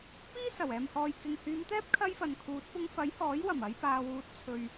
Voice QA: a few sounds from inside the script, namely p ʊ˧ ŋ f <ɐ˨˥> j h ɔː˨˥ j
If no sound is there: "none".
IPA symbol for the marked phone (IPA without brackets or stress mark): ɐ˨˥